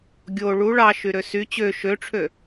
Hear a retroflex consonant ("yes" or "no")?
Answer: yes